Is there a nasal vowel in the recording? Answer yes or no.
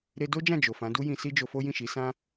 yes